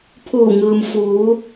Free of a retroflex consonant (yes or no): yes